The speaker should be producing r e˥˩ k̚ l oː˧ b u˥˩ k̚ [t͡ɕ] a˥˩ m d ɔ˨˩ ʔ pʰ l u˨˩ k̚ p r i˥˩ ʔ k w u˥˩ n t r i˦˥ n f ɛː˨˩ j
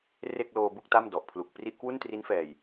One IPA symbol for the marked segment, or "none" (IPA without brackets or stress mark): t